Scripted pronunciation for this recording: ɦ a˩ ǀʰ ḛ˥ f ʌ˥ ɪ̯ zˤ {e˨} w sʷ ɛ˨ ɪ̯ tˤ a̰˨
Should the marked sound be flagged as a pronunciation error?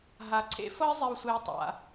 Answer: no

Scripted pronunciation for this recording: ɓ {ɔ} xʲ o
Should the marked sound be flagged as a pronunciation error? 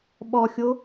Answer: no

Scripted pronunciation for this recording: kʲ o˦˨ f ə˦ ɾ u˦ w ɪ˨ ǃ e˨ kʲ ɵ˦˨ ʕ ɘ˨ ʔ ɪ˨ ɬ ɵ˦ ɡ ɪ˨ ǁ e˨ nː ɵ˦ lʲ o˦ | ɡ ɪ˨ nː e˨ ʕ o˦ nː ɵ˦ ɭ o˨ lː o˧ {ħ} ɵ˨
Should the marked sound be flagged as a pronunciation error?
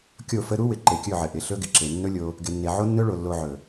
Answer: yes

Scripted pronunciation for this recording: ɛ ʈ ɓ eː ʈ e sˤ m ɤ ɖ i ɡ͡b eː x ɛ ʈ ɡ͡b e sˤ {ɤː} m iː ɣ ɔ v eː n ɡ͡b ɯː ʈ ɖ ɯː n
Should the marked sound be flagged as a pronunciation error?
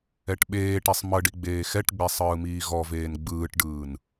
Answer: yes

